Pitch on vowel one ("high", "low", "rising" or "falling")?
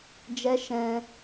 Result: high